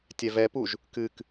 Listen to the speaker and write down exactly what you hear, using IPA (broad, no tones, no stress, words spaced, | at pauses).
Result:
tʲɛvɛpuʒ | kɨk